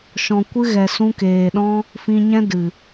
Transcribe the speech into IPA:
ʃ ɔ̃˨ kʷ ɨ˧ ɣ ɛ˨ s ũ˧ k eː˨ ɗ ɔ̃˦ | f ĩ˧ ɲ ɛ̃˦ d ɨ˨

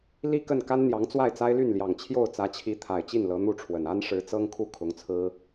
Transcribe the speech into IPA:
l i˥˧ k ə˥˩ n k a˥ n n̪ j ɑ˧˥ ŋ t͡s w a˥˩ ɪ̯ t͡s a˥ ɪ̯ l y˥˩ n l j ɑ˨˩ ŋ t͡ɕʰ j o˥˩ ʊ̯ t͡s ä˧˥ t͡ɕʰ i˧˥ t̪ʰ a˨˩ ɪ̯ t͡ɕ i˥˩ n l ɤ˧˥ n̪ u˥˩ ʈ͡ʂʰ w ə˨˩ n a˥ n ʂ ɻ̩˧˥ t͡s ɤ˥ ŋ kʰ u˥˩ kʰ ʊ˧˥ ŋ t͡sʰ ɹ̩˥

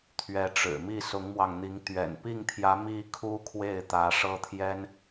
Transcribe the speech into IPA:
t̪ʰ ɥ ɛ˧˥ ʈ͡ʂ ɻ̩˨˩ m i˥˩ s ʊ˧˥ ŋ m w ɑ˧ ŋ n̪ i˧˥ ŋ t̪ ɥ ɛ̰˨˩ n p i˥˩ ŋ t̪ʰ j ä˧˥ m i˥ kʰ u˥ kʰ w e˥˩ ɪ̯ t̪ ä˧˥ ʂ ɤ˥ t̪ʰ j ɛ˥ n

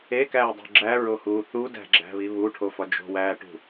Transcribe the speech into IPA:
e k æː dˤ ṳ ɡ͡ǁ æ ɹ o h uː θ u d æ̤ ɡ͡ǁ æ̤ β i β u ʈʰ o f ɒ d͡ʒ o̤ w æː ʈ ṳ

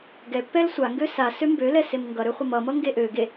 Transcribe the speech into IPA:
ɡ ɛ pː ɛ l sʷ a ŋ ɡ ø s a s ø m b ø l ɛ s e m ŋ ɡ ʌ ɾ ø χʷ ʌ m ʌ m ʌ ŋ ɡ e ʔ ø ɡ e

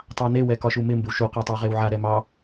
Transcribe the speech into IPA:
tˤ ɑ n e w ɛ k ɒ ʃ u m ɪ m b ɪ w ʃ u q a tˤ ɑ ʁ e w ʕ a ɾ ɛ m ɑ

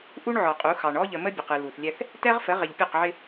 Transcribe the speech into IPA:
ʔ u˦ ɳ ʕ ɔ˨ qʼ u˨˦ x ɑ˨ ɳ ɔ˦ ʎ ə˨ m ə˦ bʲ ə˨ q ɨ˨ l u˨ θ lʲ ɛ˦ θ | t ɛ˦ ʁ f ə˨˦ ʁ ɪ˨ ʎ pʲ ɔ˦˨ q ʕ ɪ˦

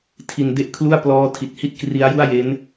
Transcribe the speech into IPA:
tʰ i˧ n d e˥˩ ʔ kʰ l u˥˩ a̯ p l ɔː˦˥ tʰ i˨˩ t̚ h i˥˩ t̚ k r i˦˥ a̯ j u˥˩ a̯ j e˦˥ n

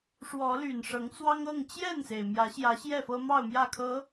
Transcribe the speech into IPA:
ʂ w ɔ˨˦ l y˨˩ n ʂ ɤ˨˦ ŋ t͡s w ɑ˦ ŋ ɤ˥˨ ŋ t͡ɕ j ɛ˥˨ n s e˩ ɪ̯ m j ä˨˦ ɕ j ä˨˦ ɕ j ɛ˥˨ f ɤ˦ m ɑ˥˨ ʊ̯ m j ä˥˨ kʰ ɤ˨˦

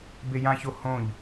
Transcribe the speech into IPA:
b e j ã ç o h õ ʎ

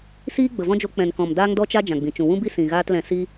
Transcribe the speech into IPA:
s iː˦ ɡ͡b ə˨ v ɔ̃˦ d͡ʒ o˧ k͡p ɛ̃˨ n k ɔ̃˨ m d aː˦ ŋ d ɔ˦ t͡ʃ a˦ d͡ʒ ã˨ ɡ͡b ĩ˨ t͡ʃ ũ˨ w ũ˦ b i˦ s ĩ˨ ɣ aː˦ t l ɛ̃˧ s i˧

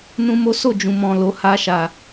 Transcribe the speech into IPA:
n ũ˦ m o˦ s o˦˨ d͡ʒ ũ˨ m ɔ̃˨ l o˨˦ h a˧ ʃ a˨

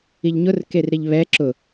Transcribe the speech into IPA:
i ʎ ɲ ʊ r k e r ɾ i ʎ β ɛ ǁ ʊ

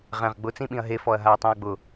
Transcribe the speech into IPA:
ʁ ɛ̃ ʁ ɡ͡b ʊ t͡s ĩ ɓ ĩ ɐ̯ ɦ e f ɔ ɐ̯ ɦ a ɐ̯ tˤ õ ɐ̯ ɡ͡b ʊ

